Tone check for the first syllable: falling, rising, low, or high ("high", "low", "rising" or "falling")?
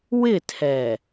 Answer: falling